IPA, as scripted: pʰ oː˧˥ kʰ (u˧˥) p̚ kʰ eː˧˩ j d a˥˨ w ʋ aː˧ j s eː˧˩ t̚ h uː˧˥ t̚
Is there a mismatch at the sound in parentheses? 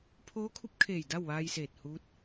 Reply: no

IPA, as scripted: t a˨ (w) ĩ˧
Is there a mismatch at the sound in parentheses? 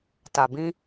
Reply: yes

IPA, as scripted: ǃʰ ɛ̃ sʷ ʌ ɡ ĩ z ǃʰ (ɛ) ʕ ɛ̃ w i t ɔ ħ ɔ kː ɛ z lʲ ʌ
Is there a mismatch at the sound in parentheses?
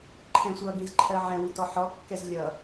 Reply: yes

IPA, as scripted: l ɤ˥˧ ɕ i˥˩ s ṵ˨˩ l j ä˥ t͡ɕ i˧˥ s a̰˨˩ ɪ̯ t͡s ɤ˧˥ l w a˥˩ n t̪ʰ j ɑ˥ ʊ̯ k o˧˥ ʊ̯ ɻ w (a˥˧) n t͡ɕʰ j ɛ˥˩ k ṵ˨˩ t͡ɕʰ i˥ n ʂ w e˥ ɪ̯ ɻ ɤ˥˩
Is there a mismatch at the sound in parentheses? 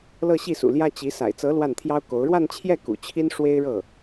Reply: no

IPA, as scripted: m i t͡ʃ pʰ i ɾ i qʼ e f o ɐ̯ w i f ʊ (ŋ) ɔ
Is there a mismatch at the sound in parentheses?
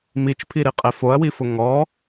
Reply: no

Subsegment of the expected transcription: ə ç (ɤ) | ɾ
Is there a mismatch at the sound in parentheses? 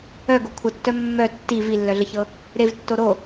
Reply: no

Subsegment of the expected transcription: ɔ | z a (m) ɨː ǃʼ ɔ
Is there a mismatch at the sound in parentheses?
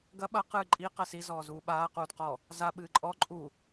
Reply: yes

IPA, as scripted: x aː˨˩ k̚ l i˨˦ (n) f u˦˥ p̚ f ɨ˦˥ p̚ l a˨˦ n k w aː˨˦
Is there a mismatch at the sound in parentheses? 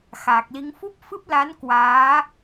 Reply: yes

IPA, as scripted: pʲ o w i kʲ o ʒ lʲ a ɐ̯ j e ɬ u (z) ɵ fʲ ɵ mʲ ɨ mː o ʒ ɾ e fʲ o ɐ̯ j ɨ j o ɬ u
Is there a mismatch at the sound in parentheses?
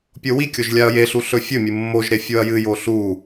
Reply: yes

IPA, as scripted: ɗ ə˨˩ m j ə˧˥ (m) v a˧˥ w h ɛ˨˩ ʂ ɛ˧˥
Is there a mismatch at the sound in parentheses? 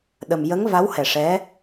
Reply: yes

